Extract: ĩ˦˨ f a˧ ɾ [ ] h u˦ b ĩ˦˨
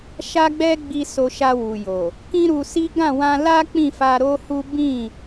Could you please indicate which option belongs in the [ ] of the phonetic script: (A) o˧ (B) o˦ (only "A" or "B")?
B